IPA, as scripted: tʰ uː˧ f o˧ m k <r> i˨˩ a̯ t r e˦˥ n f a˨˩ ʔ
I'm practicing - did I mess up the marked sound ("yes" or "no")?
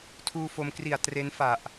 no